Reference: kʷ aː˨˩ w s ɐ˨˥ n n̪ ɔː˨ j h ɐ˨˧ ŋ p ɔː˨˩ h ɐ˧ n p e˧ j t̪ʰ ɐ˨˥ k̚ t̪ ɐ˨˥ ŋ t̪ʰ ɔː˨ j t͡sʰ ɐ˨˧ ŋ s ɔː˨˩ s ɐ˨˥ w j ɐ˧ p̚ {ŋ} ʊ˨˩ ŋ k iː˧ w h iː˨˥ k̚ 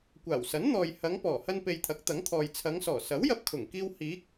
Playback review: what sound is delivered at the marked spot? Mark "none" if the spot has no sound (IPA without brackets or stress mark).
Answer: kʰ